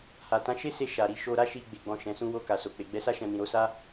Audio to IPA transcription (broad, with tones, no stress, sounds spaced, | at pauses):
h a˨ t ã˨˦ ʃ e˦ s e˧ ʃ a˨ ɾ i˨ ʃ o˧ ɾ a˦ ʃ i˧ ɡ͡b e˨ ɡ͡b ɔ̃˨ ʃ ɛ̃˨˦ s ũ˦ w o˧ k a˨ s o˨ k͡p e˨ ɡ͡b ɛ˨˦ s a˦ ʃ ɛ̃˧ m ĩ˨ ɾ o˨˦ s a˦